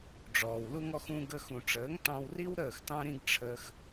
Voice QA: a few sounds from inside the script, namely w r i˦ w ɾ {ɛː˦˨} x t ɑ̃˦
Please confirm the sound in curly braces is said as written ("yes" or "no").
no